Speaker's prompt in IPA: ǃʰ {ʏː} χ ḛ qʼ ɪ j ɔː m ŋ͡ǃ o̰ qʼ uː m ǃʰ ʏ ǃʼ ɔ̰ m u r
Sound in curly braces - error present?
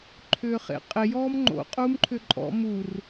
no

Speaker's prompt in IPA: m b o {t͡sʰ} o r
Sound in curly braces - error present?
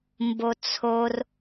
no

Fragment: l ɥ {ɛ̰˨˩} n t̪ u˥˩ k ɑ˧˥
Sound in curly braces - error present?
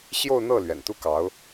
no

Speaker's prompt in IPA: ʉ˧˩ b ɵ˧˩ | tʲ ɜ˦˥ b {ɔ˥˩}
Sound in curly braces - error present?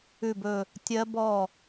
no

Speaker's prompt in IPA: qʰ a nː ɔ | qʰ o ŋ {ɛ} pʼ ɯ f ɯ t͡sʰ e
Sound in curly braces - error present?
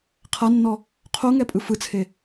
no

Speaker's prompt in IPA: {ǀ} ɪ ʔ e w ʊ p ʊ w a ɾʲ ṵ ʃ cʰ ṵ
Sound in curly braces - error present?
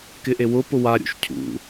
yes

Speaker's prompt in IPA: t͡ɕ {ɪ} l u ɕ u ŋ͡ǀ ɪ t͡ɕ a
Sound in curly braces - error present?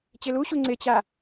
no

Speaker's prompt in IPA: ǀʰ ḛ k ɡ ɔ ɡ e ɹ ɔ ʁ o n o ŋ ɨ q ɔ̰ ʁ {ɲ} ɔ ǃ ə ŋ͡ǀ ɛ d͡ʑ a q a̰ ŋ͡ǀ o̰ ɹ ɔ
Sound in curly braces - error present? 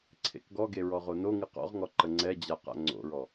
yes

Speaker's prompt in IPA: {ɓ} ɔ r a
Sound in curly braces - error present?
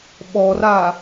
no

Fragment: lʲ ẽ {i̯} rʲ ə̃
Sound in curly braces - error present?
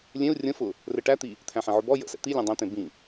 yes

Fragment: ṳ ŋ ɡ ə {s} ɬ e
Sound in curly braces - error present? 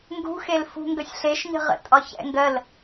yes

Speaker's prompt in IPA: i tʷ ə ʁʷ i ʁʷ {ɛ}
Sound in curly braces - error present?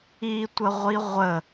yes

